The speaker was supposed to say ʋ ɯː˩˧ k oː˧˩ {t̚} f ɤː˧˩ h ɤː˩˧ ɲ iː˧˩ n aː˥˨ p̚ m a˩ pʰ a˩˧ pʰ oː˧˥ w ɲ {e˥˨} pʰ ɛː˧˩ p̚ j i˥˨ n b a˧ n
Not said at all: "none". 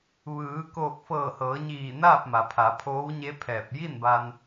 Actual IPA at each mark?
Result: k̚, e˧˥

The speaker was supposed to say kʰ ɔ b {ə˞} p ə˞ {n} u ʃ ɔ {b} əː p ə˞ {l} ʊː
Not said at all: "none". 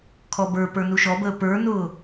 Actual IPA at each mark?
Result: ə˞, n, b, n

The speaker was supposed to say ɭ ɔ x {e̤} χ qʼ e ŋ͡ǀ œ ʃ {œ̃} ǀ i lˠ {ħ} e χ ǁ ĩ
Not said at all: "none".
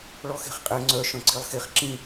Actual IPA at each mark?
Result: e̤, œ̃, x

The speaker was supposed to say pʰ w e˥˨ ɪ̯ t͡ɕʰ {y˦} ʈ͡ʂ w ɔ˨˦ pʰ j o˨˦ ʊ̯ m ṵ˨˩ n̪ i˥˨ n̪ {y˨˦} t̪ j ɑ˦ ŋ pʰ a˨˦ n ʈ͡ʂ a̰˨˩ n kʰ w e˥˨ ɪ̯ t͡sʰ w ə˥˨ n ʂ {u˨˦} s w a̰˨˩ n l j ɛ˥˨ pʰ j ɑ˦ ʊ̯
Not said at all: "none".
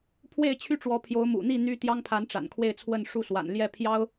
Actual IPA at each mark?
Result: y˦, y˦, u˥˨

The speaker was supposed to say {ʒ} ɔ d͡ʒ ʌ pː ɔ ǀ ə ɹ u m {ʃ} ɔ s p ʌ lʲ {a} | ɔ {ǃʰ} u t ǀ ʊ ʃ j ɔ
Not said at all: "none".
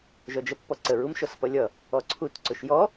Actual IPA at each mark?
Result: ʒ, ʃ, ʌ, ǀʰ

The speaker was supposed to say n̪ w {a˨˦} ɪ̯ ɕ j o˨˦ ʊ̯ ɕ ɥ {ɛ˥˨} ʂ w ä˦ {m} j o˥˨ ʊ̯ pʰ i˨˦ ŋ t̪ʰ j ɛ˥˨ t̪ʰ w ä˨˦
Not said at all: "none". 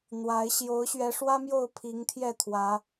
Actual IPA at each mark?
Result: a˨˦, ɛ˨˦, m

